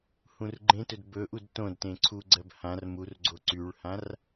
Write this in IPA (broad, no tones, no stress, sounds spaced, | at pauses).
h ũ r ɡ͡ǃ ẽ t ɵ d b ɵ ʔ u d t õ d t ẽ ǀʰ u ɡ͡ǀ ɜ b h ã r m u r ɡ͡ǀ o ǀ y ɭ h ã r